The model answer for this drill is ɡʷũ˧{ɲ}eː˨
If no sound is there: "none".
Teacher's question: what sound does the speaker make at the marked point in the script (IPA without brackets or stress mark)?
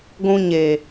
ɲ